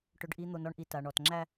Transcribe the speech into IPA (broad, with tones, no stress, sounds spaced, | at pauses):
ʈ ɵ˨ ɖ ʔ i˨ n̪ o˨ n ɔ˨ ɳ ʔ i˨ t a˨ ɳ ɔ˨ t ŋ͡ǁ æ˦